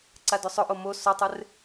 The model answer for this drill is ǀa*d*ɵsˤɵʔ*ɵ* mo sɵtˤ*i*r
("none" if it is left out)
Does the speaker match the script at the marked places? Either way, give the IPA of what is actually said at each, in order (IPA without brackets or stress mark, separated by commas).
d, o, ɪ